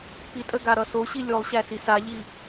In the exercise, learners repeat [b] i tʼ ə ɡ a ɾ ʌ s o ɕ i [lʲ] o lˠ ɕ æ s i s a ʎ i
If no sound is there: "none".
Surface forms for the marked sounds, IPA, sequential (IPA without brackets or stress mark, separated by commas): p, lʲ